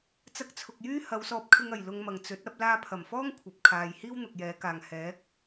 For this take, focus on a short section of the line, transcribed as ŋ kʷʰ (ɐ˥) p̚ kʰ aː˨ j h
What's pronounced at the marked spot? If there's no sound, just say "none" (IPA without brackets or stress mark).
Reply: ɐ˨